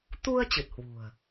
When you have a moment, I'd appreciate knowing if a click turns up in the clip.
no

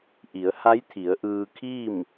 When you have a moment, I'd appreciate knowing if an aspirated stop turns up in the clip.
yes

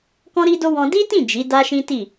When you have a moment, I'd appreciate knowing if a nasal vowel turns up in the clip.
yes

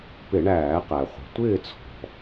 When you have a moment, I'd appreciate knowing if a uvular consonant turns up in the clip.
yes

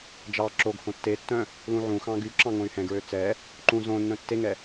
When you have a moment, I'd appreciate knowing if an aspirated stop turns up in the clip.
no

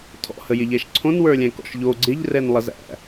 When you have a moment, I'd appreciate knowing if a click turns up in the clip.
yes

